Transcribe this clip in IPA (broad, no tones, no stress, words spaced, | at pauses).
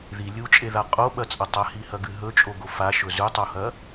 ði lʲut͡ʃʼeða qʼoɓɐt͡sʼɐ tˤɐhihɐɡɨ ɦɵt͡ʃʼoɡo faʃɵ zʉtˤohɐ